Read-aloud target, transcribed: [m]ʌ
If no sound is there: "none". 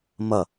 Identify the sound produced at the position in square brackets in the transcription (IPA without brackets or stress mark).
m